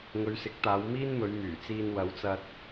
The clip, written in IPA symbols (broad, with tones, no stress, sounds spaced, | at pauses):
ŋ ɵ˨˧ ɥ s ɪ˨˥ k̚ t̪ aː˨˧ w m iː˥ n m ɵ˨˧ ɥ m yː˨˩ t͡s iː˧ n w ɐ˨˧ w t͡s ɐ˧ t̚